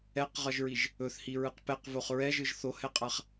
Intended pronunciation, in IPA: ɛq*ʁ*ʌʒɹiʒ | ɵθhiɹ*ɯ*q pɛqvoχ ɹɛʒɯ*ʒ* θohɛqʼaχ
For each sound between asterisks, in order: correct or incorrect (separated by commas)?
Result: correct, correct, correct